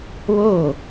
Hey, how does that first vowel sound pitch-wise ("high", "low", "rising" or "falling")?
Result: falling